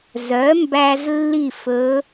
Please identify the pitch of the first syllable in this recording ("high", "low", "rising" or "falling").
rising